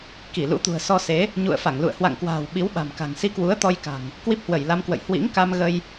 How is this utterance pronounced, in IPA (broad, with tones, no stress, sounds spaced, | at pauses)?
k i˧˩ l ṵ˧˥ t̪ ṳ˨˩ ə̯ s ɔ˧ s e˨˦ | ɲ ṵ˧˨ ə̯ f a˧˩ ŋ l ṵ˧˨ ə̯ h w a̰˧˨ ŋ k w a̤ː˨˩ w ɓ i˨˦ w ɓ a̤˨˩ m k a̤˨˩ ŋ s i˧ k w u˨˦ ə̯ t̪ ɔ˧ j k a̤˨˩ ŋ | k w i˦˥ p̚ h w ə˧˩ j l a˧ m k w ə̰˧˨ j h w ḭ˧˥ ŋ k a˧ m ɣ ə˧ j